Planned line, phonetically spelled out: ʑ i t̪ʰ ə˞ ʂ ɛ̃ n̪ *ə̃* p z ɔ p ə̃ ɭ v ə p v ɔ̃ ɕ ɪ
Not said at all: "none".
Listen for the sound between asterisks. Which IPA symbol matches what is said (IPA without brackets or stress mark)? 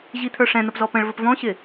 ə